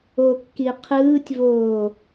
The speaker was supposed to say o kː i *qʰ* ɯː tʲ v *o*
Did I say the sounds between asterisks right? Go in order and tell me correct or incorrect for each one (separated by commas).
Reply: correct, incorrect